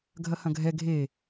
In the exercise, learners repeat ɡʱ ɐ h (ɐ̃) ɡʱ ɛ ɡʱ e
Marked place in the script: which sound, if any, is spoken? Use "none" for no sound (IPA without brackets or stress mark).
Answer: ɐ̃